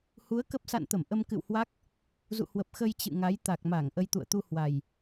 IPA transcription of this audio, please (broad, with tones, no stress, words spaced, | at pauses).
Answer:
hu˨˦ə̯kə˦˥p̚ sa̰˧˨nt̪ə˧˩m ʔə˧mkɨ̰˧˨whwa˦˥k̚ | zṵ˧˨hwə˨˩p̚ xə˧j t͡ɕɨ̰˧˨ŋa˨˦j t̪a˨˩k̚ma˧˩ŋ ʔə˧jt̪ṵ˧˨ə̯t̪u˧ hwa˨˩j